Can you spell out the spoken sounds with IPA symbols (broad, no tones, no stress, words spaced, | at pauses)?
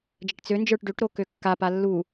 d͡ʒəʈt͡sønd͡ʒə˞ʈ ɖøʈɾo køkːapa lːu